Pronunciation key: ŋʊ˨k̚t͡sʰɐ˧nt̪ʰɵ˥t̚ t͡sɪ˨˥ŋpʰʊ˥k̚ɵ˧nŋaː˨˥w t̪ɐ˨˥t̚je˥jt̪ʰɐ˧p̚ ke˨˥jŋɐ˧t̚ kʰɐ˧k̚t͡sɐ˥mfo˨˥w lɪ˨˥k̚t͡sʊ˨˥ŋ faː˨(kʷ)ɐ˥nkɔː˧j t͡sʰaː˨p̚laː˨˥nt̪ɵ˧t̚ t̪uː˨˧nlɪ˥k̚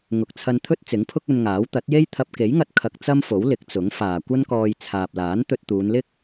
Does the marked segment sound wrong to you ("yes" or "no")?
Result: no